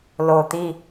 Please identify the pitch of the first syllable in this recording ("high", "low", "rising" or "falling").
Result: low